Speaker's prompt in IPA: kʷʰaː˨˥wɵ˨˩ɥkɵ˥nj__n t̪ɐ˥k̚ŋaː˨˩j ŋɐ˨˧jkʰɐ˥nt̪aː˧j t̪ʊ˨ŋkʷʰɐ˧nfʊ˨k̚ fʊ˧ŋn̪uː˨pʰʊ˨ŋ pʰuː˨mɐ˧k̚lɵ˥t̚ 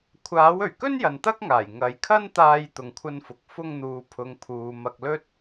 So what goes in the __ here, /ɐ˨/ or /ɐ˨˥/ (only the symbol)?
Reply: ɐ˨